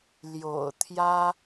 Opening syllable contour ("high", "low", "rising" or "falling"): low